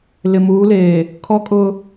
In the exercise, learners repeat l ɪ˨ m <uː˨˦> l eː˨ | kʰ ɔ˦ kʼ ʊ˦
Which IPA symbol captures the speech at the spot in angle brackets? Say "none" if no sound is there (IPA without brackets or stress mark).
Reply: uː˨˦